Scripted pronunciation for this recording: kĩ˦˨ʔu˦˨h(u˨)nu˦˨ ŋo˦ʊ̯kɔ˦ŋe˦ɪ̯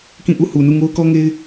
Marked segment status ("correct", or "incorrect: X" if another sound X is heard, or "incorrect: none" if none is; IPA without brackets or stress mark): correct